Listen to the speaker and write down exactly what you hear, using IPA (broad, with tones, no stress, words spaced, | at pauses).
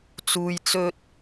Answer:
t͡suː˨jt͡sɵ˧t̚